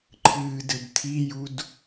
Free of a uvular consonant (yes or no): yes